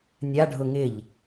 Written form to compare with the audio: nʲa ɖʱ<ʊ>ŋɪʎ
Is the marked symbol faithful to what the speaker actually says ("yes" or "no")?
yes